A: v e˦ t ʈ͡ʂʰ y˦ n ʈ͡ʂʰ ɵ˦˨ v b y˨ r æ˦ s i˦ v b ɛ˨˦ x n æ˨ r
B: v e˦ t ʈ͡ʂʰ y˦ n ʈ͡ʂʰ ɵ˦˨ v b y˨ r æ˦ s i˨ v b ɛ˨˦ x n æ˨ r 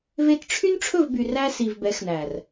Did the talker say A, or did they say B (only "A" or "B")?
B